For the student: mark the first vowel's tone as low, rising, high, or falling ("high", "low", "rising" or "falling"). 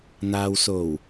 low